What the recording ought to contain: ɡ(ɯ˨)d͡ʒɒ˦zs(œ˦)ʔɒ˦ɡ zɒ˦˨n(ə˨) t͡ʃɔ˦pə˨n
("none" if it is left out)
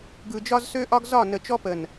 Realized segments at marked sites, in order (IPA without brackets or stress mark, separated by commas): ɯ˨, ø˦, ə˨